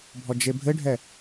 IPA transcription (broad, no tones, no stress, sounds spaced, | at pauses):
bʱ ɔ d͡ʒ e bʱ ɘ ɖʱ ɛ